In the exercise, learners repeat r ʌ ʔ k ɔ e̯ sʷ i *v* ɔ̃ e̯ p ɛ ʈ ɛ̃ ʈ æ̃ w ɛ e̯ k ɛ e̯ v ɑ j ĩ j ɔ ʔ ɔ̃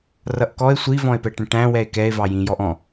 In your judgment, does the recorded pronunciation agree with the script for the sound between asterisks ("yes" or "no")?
yes